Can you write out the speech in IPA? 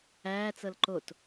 æː t͡s ɤ l ǃ o t

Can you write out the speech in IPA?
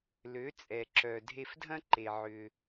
l ø˩˥ t͡sʼ ɛ˩ ǁ œ˩ dʱ e˧ f dʱ ɐ̃˥ ǃ e˩ ʕ ʏ˩

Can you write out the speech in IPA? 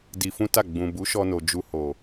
d i˧ f ũ˦ t a˦˨ ɡ͡b ũ˨ b u˨˦ ʃ ɔ˧ n o˨ d͡ʒ u˧ h o˨

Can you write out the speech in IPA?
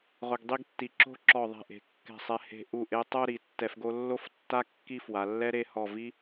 ʁ ʊ˧ ɡ dˤ i˥ ɡ tː i˧˩ ǁ o̤˥˧ ǁ ɔ˧˩ ðˤ ɛ̤˧˩ ʔ e̤˩˧ kː ɛ̤˧˩ sˤ ɛ˧ h e̤˧ ʔ u˧˩ ʔ e˧ tˤ o˥˧ ɾ i˩˧ tː ɛ˧ f ɡ o˥ lː o˥ f tː a˥ kː i˥˧ f w a˩˧ lː ɛ˥ ɾ e˥˧ h ɔ˧˩ v i˥

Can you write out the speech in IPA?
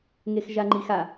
ŋ e x ʒ a ŋ͡ǃ i x a

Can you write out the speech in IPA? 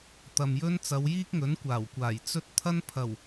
t̪ ɐ˨ m j ɵ˥ n t͡s ɐ˨˧ w j iː˥ k̚ ŋ ɵ˨˥ n kʷ aː˨˩ w kʷ aː˨˩ j t͡s ɵ˥ t̚ t̪ʰ ɐ˥ n pʰ ɐ˨˩ w

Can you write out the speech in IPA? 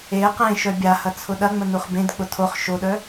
e q ẽ ʃ œ bʲ a h ɐ t͡sʰ ʊ ɗ ɐ ŋ͡m ə n u χ b ẽ d k͡p ʊ tʰ o χ ʃ o ɗ œ

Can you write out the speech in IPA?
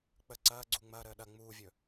k͡p ə ǀ ɐː ɡ͡ǀ u ŋ͡m ɐː ɾ əː ɗ ɐ ŋ͡m uː vʲ ɵ

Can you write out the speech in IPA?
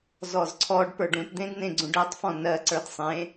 z ɔ z ǀʰ ɔ ɖ p ə˞ ɖ ũ t d̪ ẽ d n ẽ ɡ͡ǀ ũ ɖ ɜ tˤ f ɔ̃ n ɜ ǀ ə˞ d sˤ ẽ

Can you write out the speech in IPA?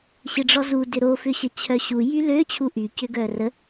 ɕ ɪ ɖ͡ʐ ɔ z u d ʏ ɾ o f ʏ ɕ ə t͡ɕʰ œ ɕ u j y l ø t͡ɕʰ u ʔ y c ʏ ɡ œː r ə

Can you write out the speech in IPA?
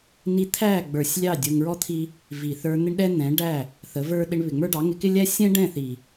n i˦ t̪ʰ æ˦˨ ɡ͡b ə˞˨ sʲ lʲ ɑ˦˨ dʲ ʊ˧ ŋ ɹ ɔ˦ t̪ʰ i˦ | v i˨ θ ə˞˧ n̪ ɪ˦ ɳ ɗ ɛ˦ n̪ ɛ̃˨˦ ɖ æ˦˨ | θ ə˨˦ v ə˞˦ ɗ ɪ˧ ɳ β ɪ˨ ŋ͡m ə˞˦ ɖ ɑ˨˦ ŋ ɪ˧ k ɪ˦ lʲ æ˦ sʲ ɛ̃˦ ɖ ɛ̃˦˨ θ i˨

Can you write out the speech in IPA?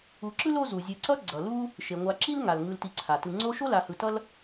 u˨ ǁ ɯ˥ l o˦ z u˩ zʲ e˨ ǀ ʌ˦ ɡ͡ǀ ʌ˩ l u˥ | ʃ e˩ ŋʷ a˨ ǁ i˥ l ŋ a˩ l ŋ ɯ˨ l t i˨ ǀʰ a˩ t ɯ˨ ŋ͡ǀ o˦ ʃ o˥ l a˨ h ɯ˨ t ʌ˥ l

